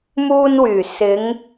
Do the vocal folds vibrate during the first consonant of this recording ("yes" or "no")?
yes